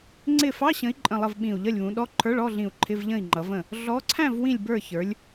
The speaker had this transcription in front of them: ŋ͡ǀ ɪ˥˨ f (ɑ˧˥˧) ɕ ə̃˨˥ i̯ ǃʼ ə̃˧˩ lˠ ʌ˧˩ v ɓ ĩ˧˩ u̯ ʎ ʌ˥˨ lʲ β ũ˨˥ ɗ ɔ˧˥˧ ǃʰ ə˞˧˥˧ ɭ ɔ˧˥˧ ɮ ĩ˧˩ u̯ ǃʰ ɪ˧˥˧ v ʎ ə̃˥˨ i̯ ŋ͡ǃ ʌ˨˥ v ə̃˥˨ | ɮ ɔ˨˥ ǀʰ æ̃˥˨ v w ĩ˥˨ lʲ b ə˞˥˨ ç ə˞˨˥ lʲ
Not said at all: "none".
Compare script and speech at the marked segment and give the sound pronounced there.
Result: ɑ˧˥˧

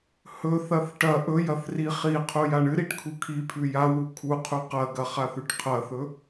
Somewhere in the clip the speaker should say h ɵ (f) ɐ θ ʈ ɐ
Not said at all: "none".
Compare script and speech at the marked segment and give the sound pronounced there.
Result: θ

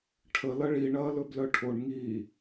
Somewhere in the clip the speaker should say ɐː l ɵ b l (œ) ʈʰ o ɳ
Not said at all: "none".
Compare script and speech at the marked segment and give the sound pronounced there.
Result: œ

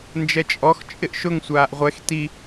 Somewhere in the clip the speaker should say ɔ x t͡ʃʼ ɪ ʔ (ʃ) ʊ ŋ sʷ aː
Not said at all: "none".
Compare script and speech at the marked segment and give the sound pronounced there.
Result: ʃ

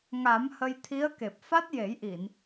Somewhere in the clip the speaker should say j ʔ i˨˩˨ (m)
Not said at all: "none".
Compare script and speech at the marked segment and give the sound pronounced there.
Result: n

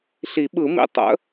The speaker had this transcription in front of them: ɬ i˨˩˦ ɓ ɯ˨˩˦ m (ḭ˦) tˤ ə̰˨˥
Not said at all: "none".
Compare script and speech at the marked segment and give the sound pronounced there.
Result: ḭ˨˥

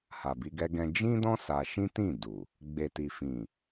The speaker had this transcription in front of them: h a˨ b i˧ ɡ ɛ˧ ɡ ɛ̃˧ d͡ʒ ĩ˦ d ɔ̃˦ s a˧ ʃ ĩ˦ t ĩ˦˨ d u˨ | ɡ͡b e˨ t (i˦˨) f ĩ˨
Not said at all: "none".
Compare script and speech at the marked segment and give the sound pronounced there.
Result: i˨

